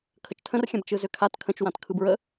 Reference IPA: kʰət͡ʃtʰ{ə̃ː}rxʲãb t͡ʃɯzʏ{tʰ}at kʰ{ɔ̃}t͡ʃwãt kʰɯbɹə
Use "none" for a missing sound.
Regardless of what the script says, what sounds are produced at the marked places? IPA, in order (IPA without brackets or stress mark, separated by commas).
ə̃, kʰ, ə̃